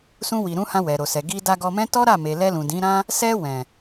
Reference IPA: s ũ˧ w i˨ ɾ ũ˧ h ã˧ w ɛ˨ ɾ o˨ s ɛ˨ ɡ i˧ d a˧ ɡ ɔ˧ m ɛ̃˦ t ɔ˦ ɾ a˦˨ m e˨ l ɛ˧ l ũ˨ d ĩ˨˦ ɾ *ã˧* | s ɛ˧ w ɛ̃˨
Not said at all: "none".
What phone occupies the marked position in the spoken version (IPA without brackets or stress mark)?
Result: ã˦